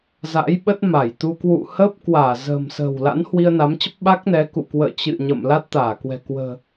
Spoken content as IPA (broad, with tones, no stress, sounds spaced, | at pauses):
z a̰˧˥ j ɓ ə˦˥ t̚ m a˧˩ j t̪ u˧ k w ṵ˧˨ h əː˦˥ p̚ k w aː˧˩ z ə̤ː˨˩ m s ə̤ː˨˩ w l a̰˧˥ n h w i˧ ə̯ n a˨˦ m t͡ɕ ə˦˥ p̚ ɓ a˦˥ k̚ n ɛ˨˦ k ṵ˧˨ k w ə̰ː˧˨ t͡ɕ ɨ̰˧˨ ɲ ə̰˧˨ m l a˦˥ t̚ t̪ aː˧˩ k w ɛ̤˨˩ k w ə̤ː˨˩